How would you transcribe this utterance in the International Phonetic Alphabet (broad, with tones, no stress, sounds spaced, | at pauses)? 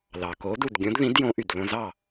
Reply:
l ɑ˩ k o˨˥ d u˥˩ d ɡʲ õ˨˥ d ð ĩ˨˥ d j õ˨˥ ʔ y˩ d l õ˧ z ɑ˥˩